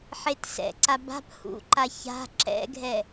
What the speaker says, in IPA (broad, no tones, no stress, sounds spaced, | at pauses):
ħ e t s ɛ̰ ǀ a b a̤ p h ṵ ǃ a ç a̤ ǁ ɛ̰ ɡʱ ɛ